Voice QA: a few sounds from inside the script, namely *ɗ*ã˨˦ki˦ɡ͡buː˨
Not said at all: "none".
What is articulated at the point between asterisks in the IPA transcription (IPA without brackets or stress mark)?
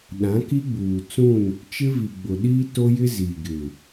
ɗ